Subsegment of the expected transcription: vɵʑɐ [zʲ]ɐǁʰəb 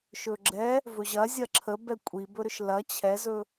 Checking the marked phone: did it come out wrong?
no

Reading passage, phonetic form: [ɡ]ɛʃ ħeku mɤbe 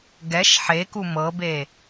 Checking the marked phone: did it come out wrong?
no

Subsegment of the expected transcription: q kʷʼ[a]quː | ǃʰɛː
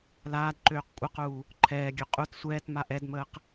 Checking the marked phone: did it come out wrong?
yes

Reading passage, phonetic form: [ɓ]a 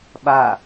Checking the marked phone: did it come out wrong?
no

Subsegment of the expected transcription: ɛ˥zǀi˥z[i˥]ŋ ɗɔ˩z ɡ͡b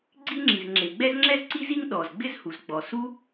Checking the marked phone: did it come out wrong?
no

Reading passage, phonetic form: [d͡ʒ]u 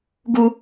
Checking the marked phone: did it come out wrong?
yes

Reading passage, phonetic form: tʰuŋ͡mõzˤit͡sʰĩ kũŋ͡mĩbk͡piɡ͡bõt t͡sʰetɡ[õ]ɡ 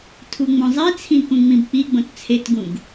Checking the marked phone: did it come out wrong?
yes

